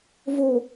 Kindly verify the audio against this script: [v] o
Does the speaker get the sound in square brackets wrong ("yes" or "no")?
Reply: no